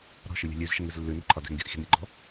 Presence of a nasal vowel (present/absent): absent